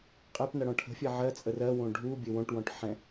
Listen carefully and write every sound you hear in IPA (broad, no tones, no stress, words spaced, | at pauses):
qʼɛpnɐ ɽɔ̃ʈʰə̤fʲɛ ʕɜt͡sʼə rɜwõ ɖʱubʲɘ wõʈwɔ̃ʈ ħɛ̃